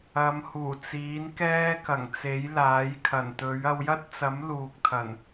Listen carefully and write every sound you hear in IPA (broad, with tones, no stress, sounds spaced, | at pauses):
ɐ˨˧ m h uː˨˩ t͡s iː˨˥ n k ɛː˥ k ɐ˨˩ ŋ t͡s e˨˥ j l aː˨˥ j kʰ ɐ˨˩ n t̪ ɵ˨˥ ɥ ɐ˧ w j ɐ˥ t̚ t͡s ɐ˨˥ m l uː˨ k̚ t̪ʰ ɐ˨˩ n